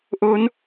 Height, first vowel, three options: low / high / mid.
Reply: mid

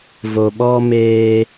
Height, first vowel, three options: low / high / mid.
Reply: mid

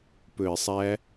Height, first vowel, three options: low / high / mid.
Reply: mid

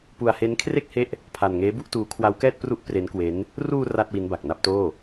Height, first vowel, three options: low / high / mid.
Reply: high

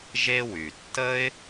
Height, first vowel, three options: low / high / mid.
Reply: mid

